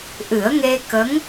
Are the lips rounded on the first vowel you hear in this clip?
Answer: no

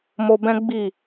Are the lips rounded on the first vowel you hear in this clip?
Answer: yes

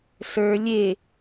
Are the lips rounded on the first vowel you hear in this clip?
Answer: no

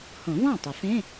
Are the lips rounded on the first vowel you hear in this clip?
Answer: yes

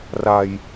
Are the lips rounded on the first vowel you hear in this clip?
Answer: no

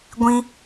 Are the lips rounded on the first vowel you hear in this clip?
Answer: no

